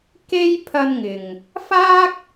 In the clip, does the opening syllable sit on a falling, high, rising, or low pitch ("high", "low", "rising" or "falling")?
high